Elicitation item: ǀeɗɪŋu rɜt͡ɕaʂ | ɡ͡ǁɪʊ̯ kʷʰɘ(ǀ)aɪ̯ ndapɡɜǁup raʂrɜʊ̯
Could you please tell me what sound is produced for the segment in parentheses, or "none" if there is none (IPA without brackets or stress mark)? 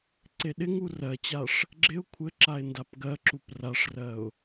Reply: ǁ